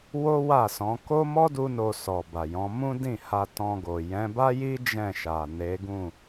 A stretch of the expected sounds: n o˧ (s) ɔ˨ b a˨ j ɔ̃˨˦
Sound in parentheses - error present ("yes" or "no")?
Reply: no